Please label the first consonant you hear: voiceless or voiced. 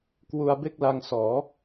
voiceless